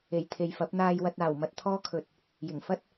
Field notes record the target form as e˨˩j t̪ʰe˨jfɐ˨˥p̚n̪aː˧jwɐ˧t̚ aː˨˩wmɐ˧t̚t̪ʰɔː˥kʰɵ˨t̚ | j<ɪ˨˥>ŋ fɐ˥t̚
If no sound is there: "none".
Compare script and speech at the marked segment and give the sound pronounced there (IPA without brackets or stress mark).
ɪ˨˩